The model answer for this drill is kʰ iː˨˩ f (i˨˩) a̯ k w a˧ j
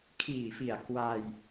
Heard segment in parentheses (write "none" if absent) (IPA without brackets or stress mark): i˨˩